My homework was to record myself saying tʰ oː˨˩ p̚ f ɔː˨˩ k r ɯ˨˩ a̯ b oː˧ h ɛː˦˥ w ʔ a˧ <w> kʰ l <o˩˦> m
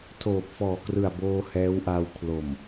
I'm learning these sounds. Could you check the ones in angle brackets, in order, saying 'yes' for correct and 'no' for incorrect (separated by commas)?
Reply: yes, no